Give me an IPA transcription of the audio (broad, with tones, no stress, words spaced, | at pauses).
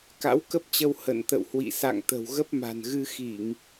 ka̰˧˥wkə˦˥p̚t͡ɕə˧w hə̰˧˨nt̪ə̰˧˨whwḭ˧˨ sa̰˧˨ŋ t̪ə̤˨˩wɣə˦˥p̚ma̤˨˩nɣɨ˧ xi˧˩˨ŋ